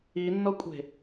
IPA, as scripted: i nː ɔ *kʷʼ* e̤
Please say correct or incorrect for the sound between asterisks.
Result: correct